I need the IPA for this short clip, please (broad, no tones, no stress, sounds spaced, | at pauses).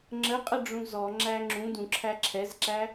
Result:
ŋ͡ǁ ə qʼ ə ɖ͡ʐ ũ z ɔ ŋ͡ǁ æ ŋ͡ǁ ũ d ũ ǁʰ æ ǁʰ ɛ z ǁ æ